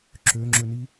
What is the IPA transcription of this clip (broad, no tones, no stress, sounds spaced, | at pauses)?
ǁ ø ŋ͡ǁ ø n i